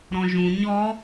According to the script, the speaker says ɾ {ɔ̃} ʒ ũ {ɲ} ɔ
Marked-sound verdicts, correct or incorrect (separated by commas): correct, correct